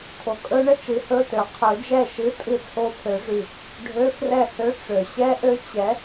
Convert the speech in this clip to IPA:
tʰ o˨ kʼ ɵ˦˥ ɳ ə˧˥˧ t͡ʃ ɨ˩˥ h ɵ˧˥˧ t ø˨ qʰ ɵ˨˩˦ d͡ʒ ɛ˥˩ ʃ ɨ˧˥˧ tʼ ɨ˥˩ t͡sʰ o˦˥ pʰ ø˨˩˦ ʐ y˨ | ɖʱ ø˧˥˧ f r ɛ˥˩ h ø˧˥˧ ʈ͡ʂ ø˨ ɕ ɛ˦˥ ʔ ø˦˥ t͡ɕ ɛ˩˥

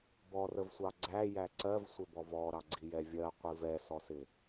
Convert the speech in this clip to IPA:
b ɔ r ə v sʷ ɑ ɡ͡ǀ æ j æ ǀ ɜ v sʷ ɪ b ɔ v ɔ ɾ ɑ ɡ͡ǀ i j ɛ vʲ ɜ qʷ i v ɛ s ɔ s ɪ

